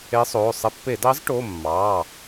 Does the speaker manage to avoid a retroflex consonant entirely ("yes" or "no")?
no